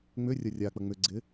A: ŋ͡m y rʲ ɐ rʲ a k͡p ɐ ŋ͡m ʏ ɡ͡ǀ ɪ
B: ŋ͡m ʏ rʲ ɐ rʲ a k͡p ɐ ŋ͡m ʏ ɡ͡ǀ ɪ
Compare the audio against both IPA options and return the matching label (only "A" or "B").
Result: B